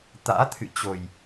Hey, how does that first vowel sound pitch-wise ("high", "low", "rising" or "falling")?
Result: rising